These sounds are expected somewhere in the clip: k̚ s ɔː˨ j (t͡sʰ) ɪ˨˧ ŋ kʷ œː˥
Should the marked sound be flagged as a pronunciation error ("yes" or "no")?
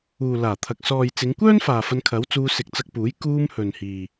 yes